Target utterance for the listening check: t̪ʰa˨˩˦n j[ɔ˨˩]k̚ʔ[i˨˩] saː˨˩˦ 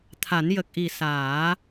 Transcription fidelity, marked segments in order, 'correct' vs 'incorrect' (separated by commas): incorrect, correct